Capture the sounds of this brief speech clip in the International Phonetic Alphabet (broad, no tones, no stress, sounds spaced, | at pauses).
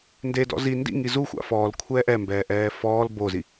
n d e d ɔ̰ z i n d ḭ ŋ i z u xʷ a̰ f ɔː l kʷʰ ɛː ʔ ɛ m b ɛː ʔ ɛː f ɔː l b o z i